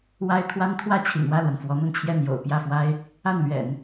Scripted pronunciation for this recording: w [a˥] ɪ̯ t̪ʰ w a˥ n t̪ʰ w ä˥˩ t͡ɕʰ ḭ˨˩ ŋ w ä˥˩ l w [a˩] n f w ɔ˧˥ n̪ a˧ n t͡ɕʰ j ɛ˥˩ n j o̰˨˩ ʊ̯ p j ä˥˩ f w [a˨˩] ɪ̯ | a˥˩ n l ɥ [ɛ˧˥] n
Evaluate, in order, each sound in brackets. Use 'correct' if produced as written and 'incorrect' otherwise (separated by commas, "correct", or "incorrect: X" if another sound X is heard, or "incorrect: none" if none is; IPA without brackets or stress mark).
correct, correct, incorrect: a˥, incorrect: ɛ̰˨˩˦